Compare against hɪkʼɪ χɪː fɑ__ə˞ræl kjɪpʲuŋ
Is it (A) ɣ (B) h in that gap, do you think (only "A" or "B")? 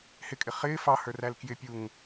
B